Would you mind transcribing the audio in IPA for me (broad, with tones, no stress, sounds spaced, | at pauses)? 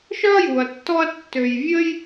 ʃ œ˦ ɐ̯ j u˨ ɐ̯ tː ɔ˧ ɐ̯ tː ø˨ j vʲ ə˧ j